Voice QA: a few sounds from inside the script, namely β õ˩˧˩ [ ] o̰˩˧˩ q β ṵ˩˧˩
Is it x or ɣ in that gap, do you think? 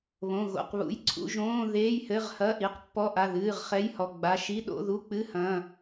ɣ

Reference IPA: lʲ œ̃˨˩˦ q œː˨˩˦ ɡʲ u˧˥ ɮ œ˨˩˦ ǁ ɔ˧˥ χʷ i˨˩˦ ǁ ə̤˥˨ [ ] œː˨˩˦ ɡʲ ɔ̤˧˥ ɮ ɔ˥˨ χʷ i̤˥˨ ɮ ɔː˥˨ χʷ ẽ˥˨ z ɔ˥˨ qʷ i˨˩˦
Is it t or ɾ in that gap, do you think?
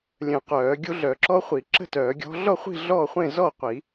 t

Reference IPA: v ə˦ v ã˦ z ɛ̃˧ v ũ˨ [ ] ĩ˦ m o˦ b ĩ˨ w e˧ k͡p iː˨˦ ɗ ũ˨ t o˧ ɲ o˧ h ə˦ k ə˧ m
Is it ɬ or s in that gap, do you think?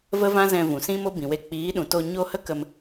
s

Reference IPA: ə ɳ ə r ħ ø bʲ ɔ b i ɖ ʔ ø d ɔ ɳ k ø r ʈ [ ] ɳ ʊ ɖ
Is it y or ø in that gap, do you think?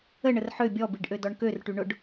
y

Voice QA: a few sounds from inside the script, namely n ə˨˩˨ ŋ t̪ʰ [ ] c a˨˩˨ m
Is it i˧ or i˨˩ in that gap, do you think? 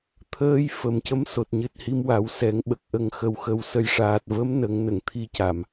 i˧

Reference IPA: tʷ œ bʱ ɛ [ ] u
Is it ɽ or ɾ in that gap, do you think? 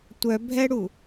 ɽ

